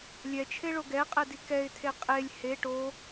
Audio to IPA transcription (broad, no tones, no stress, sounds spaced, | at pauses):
lʲ ɛ t͡ʃʰ e ɭ o ɡ ɛ qʼ ɛ d i k ɛ ɪ̯ tʰ e qʼ e lʲ h e ʈ o